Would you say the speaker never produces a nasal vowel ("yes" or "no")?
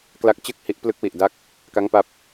yes